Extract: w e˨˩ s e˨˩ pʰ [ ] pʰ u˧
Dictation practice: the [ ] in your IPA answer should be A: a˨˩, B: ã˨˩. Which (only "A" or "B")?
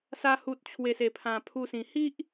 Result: B